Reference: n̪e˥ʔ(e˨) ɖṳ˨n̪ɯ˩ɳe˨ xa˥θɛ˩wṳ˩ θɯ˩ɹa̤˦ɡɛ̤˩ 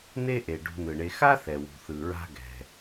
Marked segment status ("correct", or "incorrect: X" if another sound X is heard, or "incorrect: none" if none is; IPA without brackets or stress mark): correct